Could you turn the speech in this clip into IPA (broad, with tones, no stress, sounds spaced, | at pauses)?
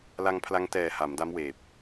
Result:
l a˧ ŋ pʰ l a˧ ŋ t ɛː˨˩ h a˩˦ m d a˦˥ m w eː˨˩ p̚